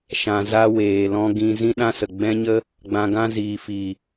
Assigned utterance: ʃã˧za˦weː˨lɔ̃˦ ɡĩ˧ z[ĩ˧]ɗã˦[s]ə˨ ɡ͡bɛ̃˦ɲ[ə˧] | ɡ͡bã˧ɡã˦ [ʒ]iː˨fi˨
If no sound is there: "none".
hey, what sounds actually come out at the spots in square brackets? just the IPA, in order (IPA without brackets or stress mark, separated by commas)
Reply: ĩ˦, s, ə˦, z